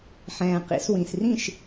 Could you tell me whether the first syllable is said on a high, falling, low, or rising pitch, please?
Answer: low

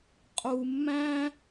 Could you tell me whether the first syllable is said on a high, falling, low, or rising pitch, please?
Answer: low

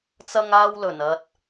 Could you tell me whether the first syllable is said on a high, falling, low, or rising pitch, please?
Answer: high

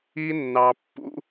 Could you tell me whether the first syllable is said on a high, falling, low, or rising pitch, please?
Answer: high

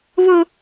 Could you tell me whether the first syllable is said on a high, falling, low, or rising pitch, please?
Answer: high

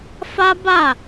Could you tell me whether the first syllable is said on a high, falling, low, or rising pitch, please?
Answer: high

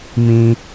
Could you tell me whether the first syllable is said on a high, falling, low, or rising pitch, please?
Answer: high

